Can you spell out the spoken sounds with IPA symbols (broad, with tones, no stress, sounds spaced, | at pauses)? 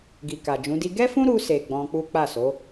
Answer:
ɡ i˨ k a˨ d͡ʒ ũ˨˦ d i˦ ɡ ɛ˦ f ũ˦ ɾ u˧ s e˨ ɡ͡b ɔ̃˧ k͡p u˦ k͡p a˦˨ s o˨˦